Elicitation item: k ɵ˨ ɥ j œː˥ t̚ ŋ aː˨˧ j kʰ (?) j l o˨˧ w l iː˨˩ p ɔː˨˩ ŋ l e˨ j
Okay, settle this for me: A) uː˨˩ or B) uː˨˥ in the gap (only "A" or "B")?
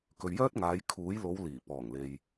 B